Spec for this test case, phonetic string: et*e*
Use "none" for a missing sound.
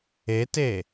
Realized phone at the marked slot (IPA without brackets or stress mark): e